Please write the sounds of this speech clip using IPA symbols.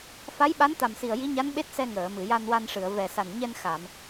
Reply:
f a˧˥ j ɓ a˧˥ n t̪ a˨˩ m s i˨˩ ə̯ j i˧˥ ɲ a˧˥ n ɓ e˦˥ t̚ s ɛ˧ ŋ əː˨˩˨ m ɨ˨˩˨ j a˧ n w a˧ n ʂ ɨ˨˩˨ ə̯ v ɛ˨˩ s a˨˩ n ɲ ɛ˧ n x a˨˩˨ m

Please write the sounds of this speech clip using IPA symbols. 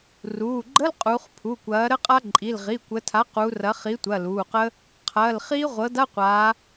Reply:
r uː˩˧˩ ɡ͡ǃ ə˧˥˧ l qʼ uː˩˧ χ pʰ u˩˧˩ kʷ ɐː˩˥ ɾ ə˦˥ qʼ a˦˥ ǃʼ i˩˧˩ l ʁ i˩˧˩ kʷ ə˩˧ tʰ a˩˥ q u˩˧ r ɐ˩˥ χ i˩˥ tʷ ɐ˩˧˩ l uː˩˧˩ q ə˦˥ | qʰ ɐː˩˧˩ l χ iː˦˥ ʁʷ ɤ˩˥ d a˧˥˧ qʷ aː˩˧

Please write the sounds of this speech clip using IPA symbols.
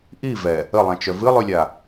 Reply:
ʔ i v ɛ | ə lˠ ã t͡ʃ œ v ɨ lˠ ʉ lʲ a

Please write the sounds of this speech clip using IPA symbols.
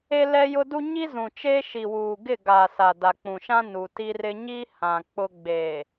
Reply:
e˦ l ɛ˦ j ʊ˦ d u˦ ɲ i˦ z ũ˨ t͡ʃ eː˦ ʃ i˨ w uː˨ ɡ ɪ˦˨ ɡ aː˨ s a˨ d a˨ k͡p ũ˨ ʃ ã˦ n u˨ t i˦ r ɪ˦ ɲ i˦ h ã˨ k͡p ʊ˦ ɡ͡b eː˨

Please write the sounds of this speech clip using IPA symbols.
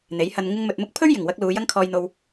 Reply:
n̪ e˨˥ j h ɐ˧ n ŋ ɪ˧ ŋ m ɵ˨ t̚ m ʊ˥ k̚ pʰ ɵ˥ ɥ j ɪ˨˩ ŋ w ɐ˧ k̚ l uː˨˧ j ɐ˥ ŋ kʰ ɔː˧ j n̪ o˧ w

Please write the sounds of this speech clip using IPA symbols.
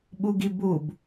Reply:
ɓ u ɡ i b u b

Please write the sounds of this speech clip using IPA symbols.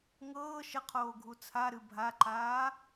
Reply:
ŋ ɤː ʃ ə qʰ oː ɡʱ u t͡sʰ a ɾ ɨ bʱ a ǃ aː

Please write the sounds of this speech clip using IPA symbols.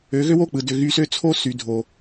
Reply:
ø˨˦ ɣ ø˦ w o˦˨ k͡p ɯ˨ d ø˨ ɣ y˧ s ø˦ t͡sʰ o˦ s y˨ dʱ o˨

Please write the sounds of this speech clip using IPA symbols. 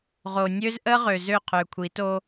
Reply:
ʁ o˨ nʲ ø˦ z ʔ ə˦ ʁ ø˨ z ø˦˨ qʰ ø˨ kʷʰ i˨˦ t o˦

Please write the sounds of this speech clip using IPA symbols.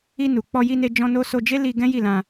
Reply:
i˧ n u˨ k͡p ɔ˧ j i˧ n e˧ d͡ʒ ɔ̃˧ n o˧ s o˧ d͡ʒ e˦ l i˧ ɡ ɛ̃˦ j i˦˨ l ã˧

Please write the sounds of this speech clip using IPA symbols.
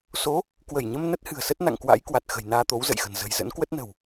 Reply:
s o˨˦ | k w ə˧˩ j ɲ ə˧ m n ə˦˥ t̚ h ɨ̤˨˩ ə̯ s ə˦˥ t̚ n a̰˧˨ ŋ k w a̰˧˥ j k w a˨˩ t̚ x ə̤˨˩ j n aː˧ t̪ o˨˦ w z ə̰˧˨ j x ə̤˨˩ n z ə̤˨˩ j z ə̰˧˥ n k w ə˦˥ t̚ n ə̤˨˩ w

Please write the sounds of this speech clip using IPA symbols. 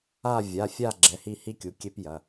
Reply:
a˦˨ vʲ a˩˧˩ fʲ a˦˨ ɡ͡ǁ ɛ˩˧˩ h i˦˨ h i˦ kʲ u˩˧˩ kʲ e˦ p j ɐ˩˧˩

